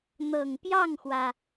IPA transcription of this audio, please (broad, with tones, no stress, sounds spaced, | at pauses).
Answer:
n̪ ɤ˨˩ ŋ p j ɑ˥˩ ŋ x w ä˩